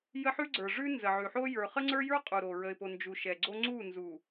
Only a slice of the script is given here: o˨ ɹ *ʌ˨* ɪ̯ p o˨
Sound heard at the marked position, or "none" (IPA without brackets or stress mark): ə˨